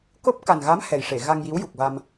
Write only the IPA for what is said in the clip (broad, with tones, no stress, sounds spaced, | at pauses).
k o˦˥ p̚ k a˨˩ n ɣ a˧˥ m h ɛ˨˩ j ʂ e˨˩˨ ɣ a˧ ŋ j i˧˥ w j u˨˩ k̚ v a˧ m